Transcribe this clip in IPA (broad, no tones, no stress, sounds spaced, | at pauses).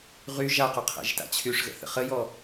ʁ y ʒ a q y qʰ ɛ̰ ʒ t a̰ t͡ɕʰ y ʂ ɣ ə̰ θ ə̰ χ ə j ɔ